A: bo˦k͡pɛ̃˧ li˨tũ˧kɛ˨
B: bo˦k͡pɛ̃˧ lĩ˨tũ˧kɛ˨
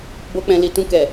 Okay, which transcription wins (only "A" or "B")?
A